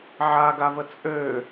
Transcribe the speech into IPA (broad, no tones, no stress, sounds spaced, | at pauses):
ʕ a ɡ a v ə t͡sʼ ø